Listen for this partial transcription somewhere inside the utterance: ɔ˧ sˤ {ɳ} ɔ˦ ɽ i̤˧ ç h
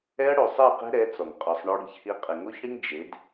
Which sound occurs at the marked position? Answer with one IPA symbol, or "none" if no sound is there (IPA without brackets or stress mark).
ɳ